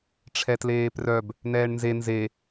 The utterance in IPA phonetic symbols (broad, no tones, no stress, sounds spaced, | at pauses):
ʈ͡ʂʰ ɛ t l eː p r œ b | n̪ ɛː ɳ n z e n z e